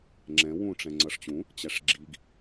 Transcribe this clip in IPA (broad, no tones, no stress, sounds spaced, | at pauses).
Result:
ŋ͡ǁ ɛ̃ w ũ ʈ͡ʂ ɛ̃ ŋ͡ǀ ʌ ʂ t͡ɕ ũ | t͡ɕ æ ʂ ɡ͡ǁ i ɡ